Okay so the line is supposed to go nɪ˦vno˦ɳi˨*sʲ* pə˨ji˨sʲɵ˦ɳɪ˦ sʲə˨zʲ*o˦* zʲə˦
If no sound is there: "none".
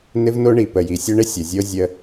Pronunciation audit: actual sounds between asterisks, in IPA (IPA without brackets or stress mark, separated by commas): none, o˦